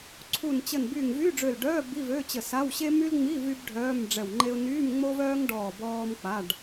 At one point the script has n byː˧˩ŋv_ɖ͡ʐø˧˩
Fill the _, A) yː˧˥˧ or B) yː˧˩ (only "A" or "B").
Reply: A